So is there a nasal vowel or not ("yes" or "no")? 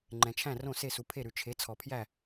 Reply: yes